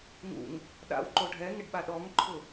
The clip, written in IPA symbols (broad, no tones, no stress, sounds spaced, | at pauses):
ŋ ṵ ŋ | ɗ a̰ w ǃ o ɖʱ ɛ ŋ ɪ ɖ ɓ a ɗ ɔ ŋ ǃʰ ʊ